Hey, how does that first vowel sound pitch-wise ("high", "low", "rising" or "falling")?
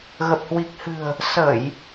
low